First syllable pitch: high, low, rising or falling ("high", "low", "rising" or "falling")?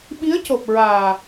rising